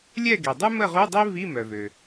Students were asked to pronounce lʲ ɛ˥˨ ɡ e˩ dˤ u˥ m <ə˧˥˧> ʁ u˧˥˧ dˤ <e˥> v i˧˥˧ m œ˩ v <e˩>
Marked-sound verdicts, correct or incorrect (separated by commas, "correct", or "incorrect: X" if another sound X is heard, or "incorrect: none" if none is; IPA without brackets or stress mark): incorrect: ə˥˨, correct, incorrect: ø˩